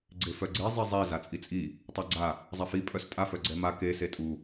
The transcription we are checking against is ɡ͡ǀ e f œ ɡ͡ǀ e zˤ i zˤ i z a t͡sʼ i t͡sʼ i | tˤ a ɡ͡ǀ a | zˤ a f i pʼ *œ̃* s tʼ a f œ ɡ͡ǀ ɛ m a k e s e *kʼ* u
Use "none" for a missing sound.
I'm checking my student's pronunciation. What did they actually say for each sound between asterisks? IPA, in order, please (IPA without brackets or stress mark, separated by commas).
œ, tʼ